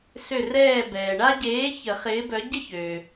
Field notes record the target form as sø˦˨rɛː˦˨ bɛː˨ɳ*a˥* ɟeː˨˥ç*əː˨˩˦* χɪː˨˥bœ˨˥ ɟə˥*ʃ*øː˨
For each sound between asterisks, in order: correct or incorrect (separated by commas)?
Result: correct, incorrect, incorrect